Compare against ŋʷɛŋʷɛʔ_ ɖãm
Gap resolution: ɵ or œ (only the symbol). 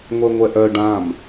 œ